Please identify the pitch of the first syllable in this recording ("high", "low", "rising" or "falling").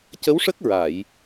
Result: rising